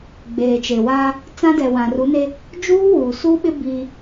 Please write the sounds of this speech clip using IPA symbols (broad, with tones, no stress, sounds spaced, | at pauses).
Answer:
ɡ͡b eː˨ t͡ʃ e˨ w aː˦ | t͡s ã˦ d ɛ˨ w ã˨ r u˨˦ n e˦ | d͡ʒ uː˦ w uː˨ s u˦ ɓ ɪ˦ b i˦